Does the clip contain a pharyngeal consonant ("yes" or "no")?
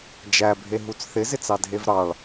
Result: no